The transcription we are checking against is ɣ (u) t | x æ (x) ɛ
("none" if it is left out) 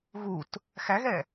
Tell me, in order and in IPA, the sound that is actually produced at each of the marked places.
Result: u, ɣ

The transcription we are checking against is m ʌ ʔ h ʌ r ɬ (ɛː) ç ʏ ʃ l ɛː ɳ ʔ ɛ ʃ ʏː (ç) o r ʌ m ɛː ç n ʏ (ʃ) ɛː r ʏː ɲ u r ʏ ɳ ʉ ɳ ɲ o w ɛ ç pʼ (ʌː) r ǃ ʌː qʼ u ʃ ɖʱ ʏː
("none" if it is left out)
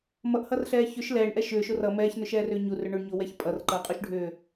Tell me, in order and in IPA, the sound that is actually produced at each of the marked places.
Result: ɛː, ʃ, ʃ, ʌ

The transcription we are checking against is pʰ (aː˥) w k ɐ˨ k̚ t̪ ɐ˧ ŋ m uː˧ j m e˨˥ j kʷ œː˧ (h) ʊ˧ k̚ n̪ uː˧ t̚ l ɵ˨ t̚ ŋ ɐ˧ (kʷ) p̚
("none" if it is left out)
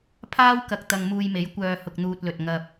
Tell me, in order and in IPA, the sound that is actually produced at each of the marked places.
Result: aː˥, h, none

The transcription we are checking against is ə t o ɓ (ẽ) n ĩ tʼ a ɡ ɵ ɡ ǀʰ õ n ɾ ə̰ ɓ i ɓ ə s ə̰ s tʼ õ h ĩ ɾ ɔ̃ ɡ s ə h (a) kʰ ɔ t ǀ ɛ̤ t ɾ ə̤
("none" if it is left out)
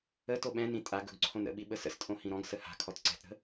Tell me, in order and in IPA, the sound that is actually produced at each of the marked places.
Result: ɛ̃, a̤

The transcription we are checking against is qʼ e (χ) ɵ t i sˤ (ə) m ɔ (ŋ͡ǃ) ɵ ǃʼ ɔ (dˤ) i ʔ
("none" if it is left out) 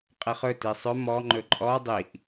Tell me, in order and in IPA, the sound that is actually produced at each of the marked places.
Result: χ, ɵ, ŋ͡ǃ, dˤ

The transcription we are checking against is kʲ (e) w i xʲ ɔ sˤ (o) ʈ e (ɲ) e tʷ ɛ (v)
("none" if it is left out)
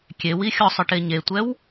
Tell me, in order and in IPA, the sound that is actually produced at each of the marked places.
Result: e, ɔ, ɲ, w

